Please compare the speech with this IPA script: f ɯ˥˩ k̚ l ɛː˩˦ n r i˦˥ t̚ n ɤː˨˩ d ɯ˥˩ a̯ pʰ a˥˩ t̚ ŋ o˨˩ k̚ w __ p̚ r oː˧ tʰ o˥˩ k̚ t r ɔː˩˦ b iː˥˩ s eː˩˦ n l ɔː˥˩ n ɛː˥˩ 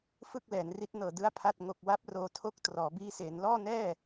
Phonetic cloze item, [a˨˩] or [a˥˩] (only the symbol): a˥˩